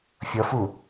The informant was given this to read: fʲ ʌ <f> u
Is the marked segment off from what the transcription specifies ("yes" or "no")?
no